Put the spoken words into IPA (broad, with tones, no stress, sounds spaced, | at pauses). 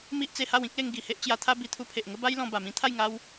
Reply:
m i˦ ʔ t͡s e˧ h a˥˧ w ĩ˦ k̚ l e˧ ŋ ɡ i˨˩ h e˦ ʔ t͡ɕ j a˧ t̪ʰ a˦ b i˧ t̪ʰ u˧ pʰ e˨ ʔ ŋ ə˦ b a˦ j l ɔ̃˧ b a˨˩ m ĩ˧ t̪ʰ a˥˧ j ŋ a˦ w